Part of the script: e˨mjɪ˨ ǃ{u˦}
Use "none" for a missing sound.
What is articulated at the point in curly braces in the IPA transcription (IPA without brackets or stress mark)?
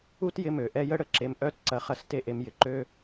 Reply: ø˦